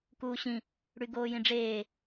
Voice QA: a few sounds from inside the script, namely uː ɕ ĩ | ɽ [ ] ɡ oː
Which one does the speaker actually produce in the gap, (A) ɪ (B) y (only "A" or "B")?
B